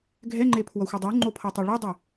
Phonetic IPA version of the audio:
ɡʱ ɛ ŋ͡ǃ e pʰ w ʌ xʷ ʌ dˤ u ŋ͡ǃ o pʰ ʌ tˤ a ɭ u dˤ i

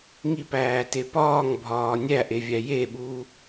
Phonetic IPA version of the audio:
ŋ i p æː t e p ɒː ŋ bʱ ɒː nʲ æ ʔ e vʲ æ j e ɓ uː

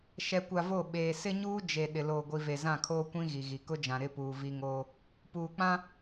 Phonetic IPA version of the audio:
ʃ ɛ˨ kʷ a˨ v o˦˨ ɓ eː˨ s ɪ˦ ɲ uː˦ d͡ʒ e˨ ɗ ɪ˨ l oː˨ ɡʷ i˨ v e˨ z ã˦˨ kʰ oː˦ kʷ ĩ˦ ɣ i˨ ɣ i˨ k ʊ˦ d͡ʒ ã˨ ɾ ɪ˦˨ p uː˨ v i˦ ŋ oː˦ | p uː˨ k͡p ã˦

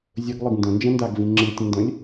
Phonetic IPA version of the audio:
zʲ ə ɡ lˠ ɨ ɡ n d ə̃ n d͡ʒ ə̃ n d a ɡ v ĩ ŋ͡ǁ ɨ tʲ ə̃ n d ə̃ lʲ

